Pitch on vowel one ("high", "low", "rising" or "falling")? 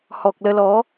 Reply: low